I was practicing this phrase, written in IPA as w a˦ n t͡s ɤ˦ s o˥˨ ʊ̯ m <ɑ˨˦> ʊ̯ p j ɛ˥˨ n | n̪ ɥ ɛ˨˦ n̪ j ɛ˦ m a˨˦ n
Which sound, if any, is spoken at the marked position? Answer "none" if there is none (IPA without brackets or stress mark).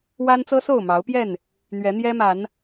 ɑ˨˦